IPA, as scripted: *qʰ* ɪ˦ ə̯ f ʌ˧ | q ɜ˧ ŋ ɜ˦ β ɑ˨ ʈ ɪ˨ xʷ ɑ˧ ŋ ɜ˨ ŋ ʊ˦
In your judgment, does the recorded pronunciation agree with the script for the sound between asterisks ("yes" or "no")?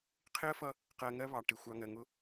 yes